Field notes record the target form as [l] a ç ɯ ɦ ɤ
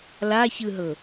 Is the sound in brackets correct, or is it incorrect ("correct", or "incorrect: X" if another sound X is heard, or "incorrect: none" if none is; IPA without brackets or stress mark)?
correct